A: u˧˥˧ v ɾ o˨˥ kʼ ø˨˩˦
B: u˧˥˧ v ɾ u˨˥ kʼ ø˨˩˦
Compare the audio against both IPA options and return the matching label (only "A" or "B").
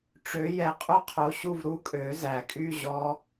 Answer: B